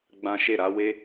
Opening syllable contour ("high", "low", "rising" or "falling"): high